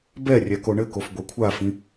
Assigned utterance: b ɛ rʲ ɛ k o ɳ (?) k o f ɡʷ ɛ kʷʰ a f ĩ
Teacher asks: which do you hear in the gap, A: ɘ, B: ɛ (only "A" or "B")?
A